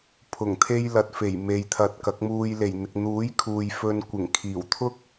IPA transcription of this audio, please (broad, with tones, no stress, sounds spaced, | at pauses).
pʰ ʊ˨˩ ŋ t̪ʰ e˥ j l ɐ˨ t̚ f e˨˩ j m e˨ j t̪ʰ ɐ˧ t̚ k ɐ˨˥ k̚ m uː˧ j l e˨˩ j n̪ ɪ˨ k̚ n̪ uː˨˥ j kʰ uː˨ j f ɵ˧ n kʷ ɪ˨˩ ŋ kʰ iː˨˩ w t̪ʰ ʊ˥ k̚